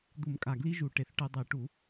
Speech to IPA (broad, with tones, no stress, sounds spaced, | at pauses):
d̪ u˧˩˧ m kʼ a˨˩ ɡ l i˦ ʒ u˧˩˧ ʈ e˨˩ θ ʈ ɨ˧˩˧ dˤ i˧˩˧ ʈ u˧˩˧